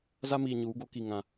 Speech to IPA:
za˦miː˨ɲuː˨˦ ɡo˦ki˦˨ŋã˦

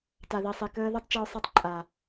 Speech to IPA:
ta˨ði˨sˤi˨kəː˧ ðe˦tˤt͡ʃe˧ʊ̯sˤi˧tˤ ǃʼa˨

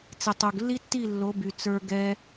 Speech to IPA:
t͡sɪ˧ tˤo˨ɡlːi˦tːi˦˨ lːo˨˦by˨ t͡sə˞˧ ɡɛ˦

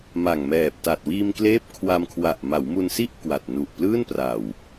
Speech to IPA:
ma˨˩ŋmɛː˨˩p̚ta˨˩t̚ wiː˧mkleː˦˥p̚ kʰwa˧mkʰwa˨˩ʔ ma˩˦wmu˧nsi˥˩ʔ kwa˨˩t̚ nu˨˩ʔplɯː˥˩n pra˨˩w

